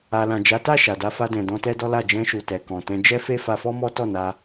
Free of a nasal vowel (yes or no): no